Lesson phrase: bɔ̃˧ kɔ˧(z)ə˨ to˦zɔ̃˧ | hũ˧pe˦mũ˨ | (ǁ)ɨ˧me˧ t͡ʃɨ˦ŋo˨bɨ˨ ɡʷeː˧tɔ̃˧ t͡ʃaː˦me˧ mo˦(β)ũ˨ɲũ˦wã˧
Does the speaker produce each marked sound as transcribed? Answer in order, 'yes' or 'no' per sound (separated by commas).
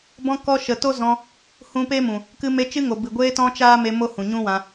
no, no, no